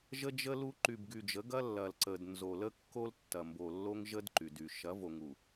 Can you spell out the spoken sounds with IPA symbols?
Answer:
ʒ ə˦ d͡ʒ ə˦ l u˦ ǃ y˨ b ɡ y˨ d͡ʒ ə˨˦ ɡ ɐ˦ lː ɐ˨ l ǀ ə˨ d n z o˨ l ə˦ kː o˦ l tː ɐ˨ m b o˨ lː o˦ ŋ ʒ ə˦ d ǃ y˨ d y˨ ʃ ɐ˨˦ v o˨ ŋ u˨

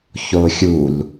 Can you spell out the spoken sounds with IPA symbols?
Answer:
ç o xʲ u l

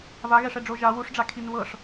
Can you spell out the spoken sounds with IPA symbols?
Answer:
v a ɣ ɛ ʂ ɛ ɖ͡ʐ o ʒ a w u ʂ ɖ͡ʐ a kʰ i n β ɤ ʂ

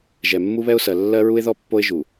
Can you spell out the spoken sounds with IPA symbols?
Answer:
ʒ ɛ˨ mː u˦ β ɛ˦ ʊ̯ s ɜ˨ lː ɜ˦ ɹ u˦ ɪ̯ ð ɔ˦ pː o˦ ɪ̯ ʒ u˨

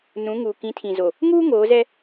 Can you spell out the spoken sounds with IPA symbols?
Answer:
n ũ˨˦ ŋ uː˨ k ĩ˨˦ tʰ ĩ˨ z o˨ | ŋ uː˦ ŋ oː˨˦ z ɛ˦

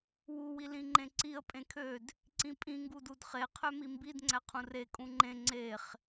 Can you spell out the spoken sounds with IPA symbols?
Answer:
w u w i l ĩ ŋ͡ǃ ẽ ǀ i ə̯ pʼ ẽ kʰ ø d | ǀ ĩ pʼ ĩ ŋ ɡ u d u d χ e qʰ ø m i m b i d ŋ͡ǀ æ qʰ ũ r e kʼ ũ ŋ͡ǃ ẽ ŋ͡ǀ e χ

